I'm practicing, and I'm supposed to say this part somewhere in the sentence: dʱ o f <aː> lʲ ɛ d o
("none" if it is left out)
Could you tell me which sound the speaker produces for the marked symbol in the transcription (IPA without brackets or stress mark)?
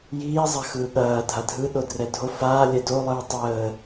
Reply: aː